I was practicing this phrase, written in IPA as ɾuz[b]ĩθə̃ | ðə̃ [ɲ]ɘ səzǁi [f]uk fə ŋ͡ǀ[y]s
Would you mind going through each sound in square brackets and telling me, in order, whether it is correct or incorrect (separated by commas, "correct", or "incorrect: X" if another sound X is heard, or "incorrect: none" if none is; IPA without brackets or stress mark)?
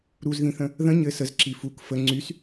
incorrect: ð, correct, correct, correct